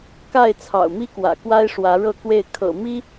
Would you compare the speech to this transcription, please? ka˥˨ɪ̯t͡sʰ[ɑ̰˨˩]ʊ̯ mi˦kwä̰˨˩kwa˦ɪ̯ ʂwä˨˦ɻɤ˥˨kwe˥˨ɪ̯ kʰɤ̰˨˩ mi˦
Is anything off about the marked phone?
no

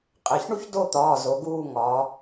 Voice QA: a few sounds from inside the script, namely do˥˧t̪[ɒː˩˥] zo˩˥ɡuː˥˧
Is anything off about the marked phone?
yes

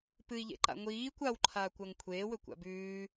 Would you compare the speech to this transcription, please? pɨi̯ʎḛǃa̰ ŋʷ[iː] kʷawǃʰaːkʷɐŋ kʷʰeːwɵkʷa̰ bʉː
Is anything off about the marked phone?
no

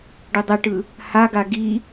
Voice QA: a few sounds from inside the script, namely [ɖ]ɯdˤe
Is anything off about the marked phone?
no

